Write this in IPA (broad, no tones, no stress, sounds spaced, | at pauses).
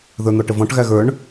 ð ə˞ n̪ ɔ ʈ ə v ɔ̃ ʈ ɣ æ ɣ ə˞ ɳ